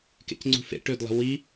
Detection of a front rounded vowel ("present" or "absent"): present